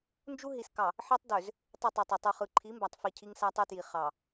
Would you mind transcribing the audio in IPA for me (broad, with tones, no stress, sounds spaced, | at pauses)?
n d͡ʒ u˦ ɦ i˨ s k ɑ˨ | ħ e˦ tˤ d ø˨ z | tˤ e˦˨ tˤ ø˨ tˤ ø˨ tˤ u˨ χ ɯ˨ ǃʰ i˨˦ m b æ˨ tˤ f i˨ cʰ i˦ ŋ s æ˦ tˤ ø˦ t j i˨ χ ɑ˨